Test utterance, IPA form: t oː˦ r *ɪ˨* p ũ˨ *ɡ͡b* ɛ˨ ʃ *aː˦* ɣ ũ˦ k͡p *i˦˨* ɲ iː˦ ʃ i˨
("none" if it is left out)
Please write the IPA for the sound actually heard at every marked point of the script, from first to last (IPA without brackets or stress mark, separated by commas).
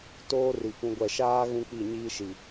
i˨, ɡʷ, aː˦, i˦˨